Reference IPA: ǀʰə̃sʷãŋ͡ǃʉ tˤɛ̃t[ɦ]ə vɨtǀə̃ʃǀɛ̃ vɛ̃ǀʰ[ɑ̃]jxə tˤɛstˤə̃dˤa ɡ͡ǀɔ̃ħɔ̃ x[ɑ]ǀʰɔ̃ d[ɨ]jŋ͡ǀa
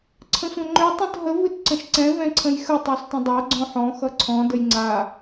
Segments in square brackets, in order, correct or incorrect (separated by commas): correct, incorrect, incorrect, incorrect